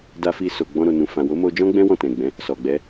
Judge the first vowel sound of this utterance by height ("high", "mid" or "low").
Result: low